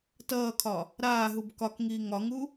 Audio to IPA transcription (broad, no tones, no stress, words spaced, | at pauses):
tʌːkʰɒ | ɾaːɦub kɒkŋiː ŋɒŋu